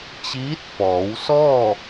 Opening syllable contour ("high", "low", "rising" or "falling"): rising